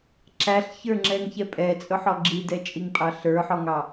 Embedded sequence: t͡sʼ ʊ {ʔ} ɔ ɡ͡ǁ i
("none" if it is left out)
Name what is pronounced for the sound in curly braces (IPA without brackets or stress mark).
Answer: ħ